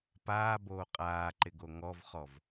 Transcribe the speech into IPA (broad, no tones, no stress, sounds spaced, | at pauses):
p aː b oː qʼ aː ǃ ɪ ɡ o ŋ ɔ v χ ɔ v